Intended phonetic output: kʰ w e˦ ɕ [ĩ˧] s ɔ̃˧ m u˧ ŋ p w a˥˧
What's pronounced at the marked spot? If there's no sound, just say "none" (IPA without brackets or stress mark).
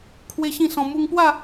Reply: ĩ˥˧